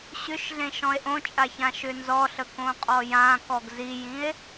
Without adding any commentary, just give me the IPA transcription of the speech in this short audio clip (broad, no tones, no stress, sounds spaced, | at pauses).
ɕ ʏ ʃ ɮ ẽ ʃ ɔ̃ e̯ ʔ õ t͡ʃʼ a ç ã ʃ ʏ n z ɔ ɬ ə k õ qʼ ɔ j ã k ɔ ɡ z i j ĩ e̯